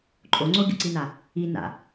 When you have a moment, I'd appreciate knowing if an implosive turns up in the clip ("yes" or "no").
no